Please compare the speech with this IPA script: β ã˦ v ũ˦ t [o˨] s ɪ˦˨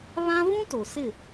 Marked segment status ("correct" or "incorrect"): correct